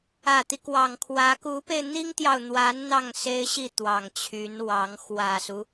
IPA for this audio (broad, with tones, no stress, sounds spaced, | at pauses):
ä˨˩ t̪ i˦ k w ɑ˨˩ ŋ kʰ w ä˧˥ k u˧˥ p e˧ ɪ̯ n̪ i˥ ŋ t̪ j ɑ˨ ʊ̯ n̪ w a˧˥ n n̪ ɑ˥˩ ŋ s e˥ ɪ̯ ɕ i˥˩ t̪ w ɑ˨˩ ŋ t͡ɕʰ y˧˥ n w ɑ˧˥ ŋ x w ä˨˩ s u˦